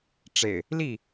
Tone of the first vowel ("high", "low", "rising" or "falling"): low